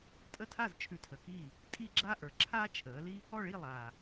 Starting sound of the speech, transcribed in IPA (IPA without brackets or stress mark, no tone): tʼ